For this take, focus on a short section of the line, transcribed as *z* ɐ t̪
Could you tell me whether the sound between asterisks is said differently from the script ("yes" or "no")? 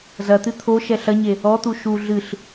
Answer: no